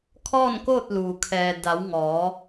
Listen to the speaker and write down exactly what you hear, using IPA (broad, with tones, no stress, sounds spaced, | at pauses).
kʰ ɔː˥˨ n k oː˥˨ t̚ l uː˩ kʰ ɛː˩ d a˩˧ w ŋ ɔː˩˧